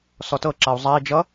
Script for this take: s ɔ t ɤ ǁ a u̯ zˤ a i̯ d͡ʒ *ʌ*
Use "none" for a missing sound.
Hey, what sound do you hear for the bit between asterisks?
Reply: ʌ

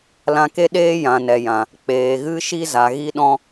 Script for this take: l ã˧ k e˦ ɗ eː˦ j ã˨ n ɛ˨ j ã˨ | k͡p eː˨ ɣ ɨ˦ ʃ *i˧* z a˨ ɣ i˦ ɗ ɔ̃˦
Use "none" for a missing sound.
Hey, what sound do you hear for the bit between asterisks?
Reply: i˦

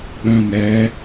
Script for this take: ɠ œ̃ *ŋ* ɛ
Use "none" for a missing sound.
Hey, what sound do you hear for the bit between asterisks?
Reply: n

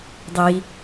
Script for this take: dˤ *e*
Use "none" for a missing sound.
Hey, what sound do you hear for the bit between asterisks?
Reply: i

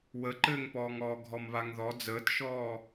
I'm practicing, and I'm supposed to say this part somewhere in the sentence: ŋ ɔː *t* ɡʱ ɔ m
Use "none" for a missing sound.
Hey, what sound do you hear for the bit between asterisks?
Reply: none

